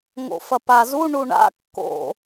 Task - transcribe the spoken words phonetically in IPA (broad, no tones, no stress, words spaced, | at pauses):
ŋo̰fɐpazu ɳuɳa̰ kːo̰